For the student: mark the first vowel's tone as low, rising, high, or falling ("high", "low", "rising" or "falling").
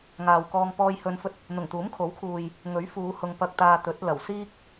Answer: low